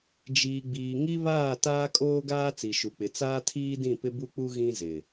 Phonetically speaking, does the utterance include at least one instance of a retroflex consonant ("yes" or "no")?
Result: no